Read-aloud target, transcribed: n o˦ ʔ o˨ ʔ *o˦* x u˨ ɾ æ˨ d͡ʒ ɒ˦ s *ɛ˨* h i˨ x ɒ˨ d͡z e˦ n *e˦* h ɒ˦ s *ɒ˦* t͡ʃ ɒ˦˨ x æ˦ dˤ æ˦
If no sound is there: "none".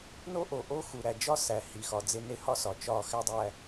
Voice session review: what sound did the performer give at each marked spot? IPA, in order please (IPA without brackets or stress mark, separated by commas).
o˦, æ˨, e˦, ɒ˨